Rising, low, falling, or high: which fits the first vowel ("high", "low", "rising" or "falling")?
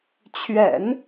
low